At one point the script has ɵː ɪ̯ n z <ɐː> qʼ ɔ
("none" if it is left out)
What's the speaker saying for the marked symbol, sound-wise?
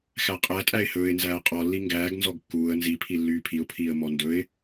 æː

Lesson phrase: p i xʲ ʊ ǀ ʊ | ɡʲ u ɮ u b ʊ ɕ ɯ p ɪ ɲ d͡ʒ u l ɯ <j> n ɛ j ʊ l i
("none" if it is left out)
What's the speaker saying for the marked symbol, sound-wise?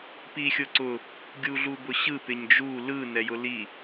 none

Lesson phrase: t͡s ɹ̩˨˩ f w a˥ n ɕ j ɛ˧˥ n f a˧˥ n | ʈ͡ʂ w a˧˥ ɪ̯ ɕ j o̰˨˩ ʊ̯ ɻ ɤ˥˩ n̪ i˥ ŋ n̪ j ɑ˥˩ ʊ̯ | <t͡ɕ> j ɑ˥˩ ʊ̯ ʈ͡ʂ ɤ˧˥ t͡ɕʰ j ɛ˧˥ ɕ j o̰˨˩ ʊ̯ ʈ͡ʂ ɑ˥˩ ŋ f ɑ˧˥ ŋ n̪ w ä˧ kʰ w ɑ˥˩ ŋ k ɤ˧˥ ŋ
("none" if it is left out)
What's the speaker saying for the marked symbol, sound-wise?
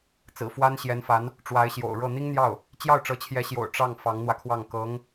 t͡ɕ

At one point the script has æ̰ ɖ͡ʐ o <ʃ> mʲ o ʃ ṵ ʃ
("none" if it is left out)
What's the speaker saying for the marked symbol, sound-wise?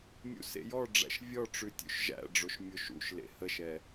ʃ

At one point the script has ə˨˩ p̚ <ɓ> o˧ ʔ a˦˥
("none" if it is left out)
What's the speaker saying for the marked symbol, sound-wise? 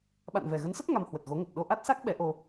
ɗ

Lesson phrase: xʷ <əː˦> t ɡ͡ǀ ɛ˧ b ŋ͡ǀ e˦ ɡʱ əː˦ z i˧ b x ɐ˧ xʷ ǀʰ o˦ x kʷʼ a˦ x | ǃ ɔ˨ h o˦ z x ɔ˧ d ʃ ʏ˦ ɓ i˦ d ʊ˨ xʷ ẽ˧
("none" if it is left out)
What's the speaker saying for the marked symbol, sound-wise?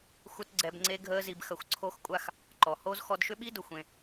ə˦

